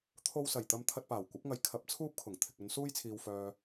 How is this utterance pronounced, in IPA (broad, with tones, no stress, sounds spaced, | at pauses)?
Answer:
t̪ʰ o˧ w s ɐ˨˩ j t̪ ɐ˧ m t̪ʰ ɐ˧ t̚ p aː˨˩ w kʷ ɐ˨˥ p̚ ŋ ɐ˨ j kʰ ɐ˨˥ p̚ t͡sʰ uː˥ p̚ kʰ ʊ˨˩ ŋ t̪ʰ ɪ˨ k̚ ɵ˨˧ n s uː˥ j t͡sʰ iː˨ w f œː˨